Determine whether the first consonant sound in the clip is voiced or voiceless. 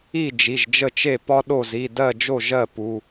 voiced